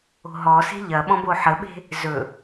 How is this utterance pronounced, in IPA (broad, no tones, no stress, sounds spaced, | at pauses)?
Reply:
o̤ ɦ ɔ s e̤ ʎ ɐ ɓ ɔ̃ b o ħ ə ɓ e̤ | z ɵ